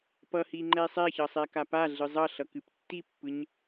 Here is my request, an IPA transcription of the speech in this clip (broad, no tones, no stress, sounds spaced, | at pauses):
p ʌ h i ŋ͡ǃ ɛ sˤ ɛ ç ʌ sˤ ɛ k a p a ɮ ɯ zˤ ʌ ɬ ʌ k ɨ p tː i pː ɯ ɲ